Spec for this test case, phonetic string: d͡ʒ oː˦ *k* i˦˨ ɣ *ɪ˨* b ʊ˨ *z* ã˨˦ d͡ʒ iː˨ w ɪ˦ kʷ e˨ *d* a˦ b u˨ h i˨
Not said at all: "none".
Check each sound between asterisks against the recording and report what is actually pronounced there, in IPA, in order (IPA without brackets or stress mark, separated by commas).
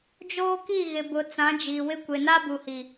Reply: k, ɪ˨, t͡s, n